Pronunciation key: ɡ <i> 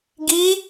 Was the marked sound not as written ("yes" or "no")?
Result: no